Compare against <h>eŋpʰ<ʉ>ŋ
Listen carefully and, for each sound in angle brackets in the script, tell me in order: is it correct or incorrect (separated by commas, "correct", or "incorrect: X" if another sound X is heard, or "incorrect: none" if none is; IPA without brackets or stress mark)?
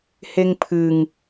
correct, incorrect: ɨ